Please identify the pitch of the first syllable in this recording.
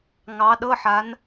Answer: rising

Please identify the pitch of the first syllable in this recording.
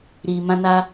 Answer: low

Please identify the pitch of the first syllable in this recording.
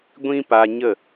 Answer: high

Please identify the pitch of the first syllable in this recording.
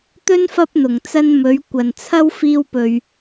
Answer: high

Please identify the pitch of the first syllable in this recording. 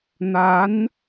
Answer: rising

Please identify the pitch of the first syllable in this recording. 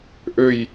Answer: falling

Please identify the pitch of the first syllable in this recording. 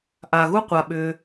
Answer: low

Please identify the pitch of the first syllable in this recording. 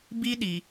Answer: high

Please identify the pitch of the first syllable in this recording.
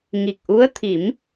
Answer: low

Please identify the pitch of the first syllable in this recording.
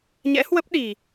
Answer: rising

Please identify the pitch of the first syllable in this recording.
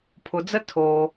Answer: low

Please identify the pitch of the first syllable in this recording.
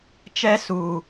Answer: high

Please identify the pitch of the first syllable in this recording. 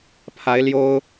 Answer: rising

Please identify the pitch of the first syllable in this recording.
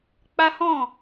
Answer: high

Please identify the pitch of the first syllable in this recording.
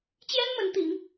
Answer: high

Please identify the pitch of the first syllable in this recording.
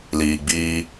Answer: low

